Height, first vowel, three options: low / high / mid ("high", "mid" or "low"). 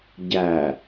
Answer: low